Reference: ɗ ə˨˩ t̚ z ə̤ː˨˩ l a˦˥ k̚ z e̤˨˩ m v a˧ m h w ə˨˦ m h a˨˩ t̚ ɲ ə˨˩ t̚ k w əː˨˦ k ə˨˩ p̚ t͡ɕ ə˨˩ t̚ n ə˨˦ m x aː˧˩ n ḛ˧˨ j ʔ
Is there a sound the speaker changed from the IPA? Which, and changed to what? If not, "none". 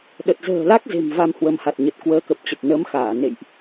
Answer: none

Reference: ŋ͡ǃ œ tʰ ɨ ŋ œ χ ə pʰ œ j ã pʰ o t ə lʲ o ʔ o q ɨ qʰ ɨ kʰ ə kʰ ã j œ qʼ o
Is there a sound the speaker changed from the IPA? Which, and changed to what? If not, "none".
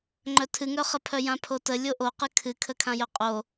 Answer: qʰ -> kʰ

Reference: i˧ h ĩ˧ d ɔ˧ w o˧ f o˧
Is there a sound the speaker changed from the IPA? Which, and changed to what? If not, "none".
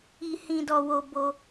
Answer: f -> b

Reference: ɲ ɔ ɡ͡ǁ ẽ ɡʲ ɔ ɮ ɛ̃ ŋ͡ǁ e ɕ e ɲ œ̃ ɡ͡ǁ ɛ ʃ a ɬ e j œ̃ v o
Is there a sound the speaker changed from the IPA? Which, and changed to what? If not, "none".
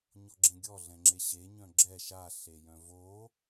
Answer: none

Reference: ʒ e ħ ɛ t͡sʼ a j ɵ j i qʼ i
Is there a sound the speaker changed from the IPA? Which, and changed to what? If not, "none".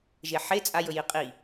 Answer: ɛ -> e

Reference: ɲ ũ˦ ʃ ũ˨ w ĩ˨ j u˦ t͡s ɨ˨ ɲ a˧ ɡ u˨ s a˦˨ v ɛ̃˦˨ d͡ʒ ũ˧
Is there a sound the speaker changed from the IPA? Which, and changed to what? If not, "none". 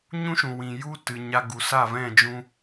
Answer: t͡s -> t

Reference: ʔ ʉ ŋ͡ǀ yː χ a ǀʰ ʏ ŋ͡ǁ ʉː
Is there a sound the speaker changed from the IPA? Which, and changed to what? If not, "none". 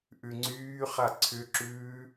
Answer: ŋ͡ǁ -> ǁ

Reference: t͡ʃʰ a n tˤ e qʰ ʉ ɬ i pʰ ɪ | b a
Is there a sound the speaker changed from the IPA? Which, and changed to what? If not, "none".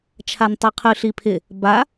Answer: none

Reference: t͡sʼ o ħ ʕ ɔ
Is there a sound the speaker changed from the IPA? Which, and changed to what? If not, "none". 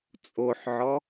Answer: none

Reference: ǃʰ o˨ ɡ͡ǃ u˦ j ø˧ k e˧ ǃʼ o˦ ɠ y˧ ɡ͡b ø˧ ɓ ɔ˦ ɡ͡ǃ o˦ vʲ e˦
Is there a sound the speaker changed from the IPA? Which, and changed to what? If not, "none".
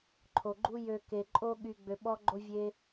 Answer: none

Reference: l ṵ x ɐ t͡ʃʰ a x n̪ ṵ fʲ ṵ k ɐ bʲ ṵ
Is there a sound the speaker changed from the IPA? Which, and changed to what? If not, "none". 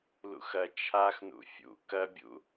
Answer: none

